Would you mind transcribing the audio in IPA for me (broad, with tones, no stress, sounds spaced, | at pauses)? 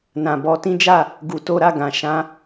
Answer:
n ã˨ b ɔ˧ t ĩ˦ d͡ʒ a˦˨ | ɡ u˧ t o˦ ɾ a˦˨ ɡ ã˨ ʃ ã˧